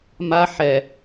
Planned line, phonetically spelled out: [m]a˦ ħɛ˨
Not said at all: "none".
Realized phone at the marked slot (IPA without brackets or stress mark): m